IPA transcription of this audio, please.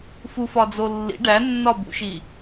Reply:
f u f ɒ d͡z o lː ḭ ɖ æ nː ɒ b ṵ ʃ i

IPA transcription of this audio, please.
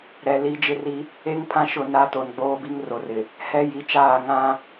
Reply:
ɾ ɛ˨ l i˦ d͡ʒ ɪ˦ r i˦ | e˦ ŋ pʰ ã˦ ʃ ʊ˦˨ n a˦ t o˨ n ɡ͡b oː˦ b i˦ ŋ r o˨ r ɪ˨ | h ɛ˦ j i˨˦ t͡ʃ aː˦˨ ŋ ã˦

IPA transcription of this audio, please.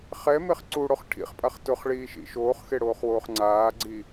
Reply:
χ ɛ m e χ ǀ u ɽ o χ ʈʰ ḭ χ pʼ a χ t ʊ χ ɭ iː ʃ ḭ ʃ oː χ x e ɽ oː χ w oː χ ŋ͡ǀ aː ɡ͡ǀ i

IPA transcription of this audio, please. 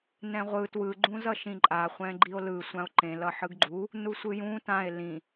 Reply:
n ɛ̃ ʁʷ ɯ t w ɯ ɡ͡ǃ ũ z ʌ ʃ ĩ ǃʼ a χʷ ɛ̃ ɡ͡ǃ i o̯ l ɯ sʷ ã o̯ ǃ ẽ l ʌ ħ ɯ ɡ ɡ͡ǃ u | n u sʷ ɯ j ũ t ã e̯ l ĩ

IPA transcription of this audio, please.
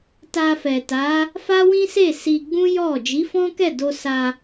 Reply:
t a˧ f ɛ˨ t a˨˦ | f a˦ w ĩ˦ s e˦˨ s i˧ ɡ͡b ũ˦ j ɔ˦˨ d͡ʒ i˨˦ f ɔ̃˦ k ɛ˦˨ d o˧ s a˧

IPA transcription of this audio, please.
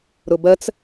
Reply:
ɾ ʊ b ɜ t͡s

